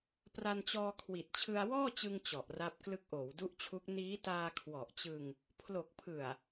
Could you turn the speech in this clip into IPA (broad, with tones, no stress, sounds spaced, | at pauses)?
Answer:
p r a˧ n t͡ɕ ɔː˧ kʰ w i˨˩ t̚ t͡ɕʰ ɯ˧ a̯ w ɔː˥˩ t͡ɕ ɯ˧ ŋ t͡ɕ ɔ˨˩ ʔ r a˦˥ p̚ k l ɯ˦˥ k̚ ʔ oː˩˦ w d u˦˥ ʔ t͡ɕʰ u˦˥ k̚ n iː˦˥ t aː˧ kʰ w ɔ˨˩ ʔ t͡ɕ ɯ˧ ŋ | pʰ l o˨˩ k̚ pʰ ɯ˨˩ a̯